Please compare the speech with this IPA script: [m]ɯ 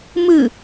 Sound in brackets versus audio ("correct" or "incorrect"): correct